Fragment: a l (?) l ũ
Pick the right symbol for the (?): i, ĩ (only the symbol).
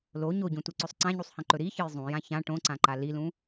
i